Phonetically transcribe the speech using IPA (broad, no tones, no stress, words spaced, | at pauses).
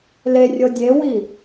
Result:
lerʲɤ dʲewi